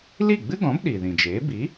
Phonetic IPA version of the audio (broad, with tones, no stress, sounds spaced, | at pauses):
l i˥˩ ɡ͡b ɨ˥ ɡ ɔ̃˩˥ b ɗ i˩ ð ĩ˩ d͡ʒ eː˩˥ b i˩˥